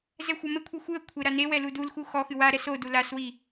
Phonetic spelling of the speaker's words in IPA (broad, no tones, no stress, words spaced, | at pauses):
zɛxʷamɘkʷʰɐ xʷɨə̯ kʷʰeɾanewɛ ludulxu xɔxɨ waɾɛs odu laswi